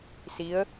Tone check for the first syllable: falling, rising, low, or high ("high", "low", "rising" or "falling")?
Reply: rising